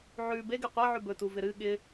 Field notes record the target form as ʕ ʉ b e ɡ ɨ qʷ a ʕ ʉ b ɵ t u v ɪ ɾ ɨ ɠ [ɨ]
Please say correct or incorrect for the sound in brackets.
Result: incorrect: ɪ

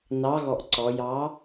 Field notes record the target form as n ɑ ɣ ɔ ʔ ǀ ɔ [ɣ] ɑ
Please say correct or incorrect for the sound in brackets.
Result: incorrect: j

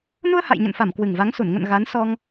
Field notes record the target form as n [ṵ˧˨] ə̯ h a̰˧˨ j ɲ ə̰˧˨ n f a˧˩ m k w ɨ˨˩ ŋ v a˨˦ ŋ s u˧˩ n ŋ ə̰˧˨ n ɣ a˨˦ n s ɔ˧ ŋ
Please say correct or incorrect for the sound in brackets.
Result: incorrect: u˧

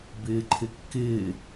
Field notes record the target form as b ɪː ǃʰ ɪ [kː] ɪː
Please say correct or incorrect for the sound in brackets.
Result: correct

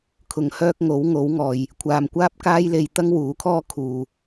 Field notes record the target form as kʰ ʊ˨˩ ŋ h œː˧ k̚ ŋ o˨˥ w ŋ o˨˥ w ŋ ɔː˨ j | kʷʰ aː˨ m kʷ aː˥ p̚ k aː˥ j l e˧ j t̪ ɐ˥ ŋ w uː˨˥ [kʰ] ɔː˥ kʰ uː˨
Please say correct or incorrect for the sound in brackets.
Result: correct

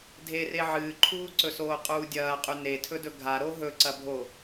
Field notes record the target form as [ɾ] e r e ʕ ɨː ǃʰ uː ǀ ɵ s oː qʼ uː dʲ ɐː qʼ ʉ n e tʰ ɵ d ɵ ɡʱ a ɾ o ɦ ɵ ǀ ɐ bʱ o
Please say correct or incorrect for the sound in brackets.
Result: incorrect: dʱ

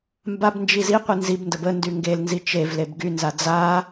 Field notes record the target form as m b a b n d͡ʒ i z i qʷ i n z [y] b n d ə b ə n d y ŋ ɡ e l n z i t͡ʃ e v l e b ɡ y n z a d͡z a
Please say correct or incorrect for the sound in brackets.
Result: incorrect: i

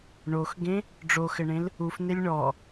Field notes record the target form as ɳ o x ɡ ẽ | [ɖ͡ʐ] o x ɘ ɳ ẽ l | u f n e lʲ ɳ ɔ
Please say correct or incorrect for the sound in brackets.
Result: correct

